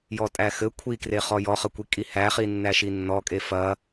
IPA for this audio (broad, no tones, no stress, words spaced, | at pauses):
jɔtʼæxɘ kʷʰikre χɔjɔχɐkʷi kʼihæχi nːæʃinːɔkʼe fɐ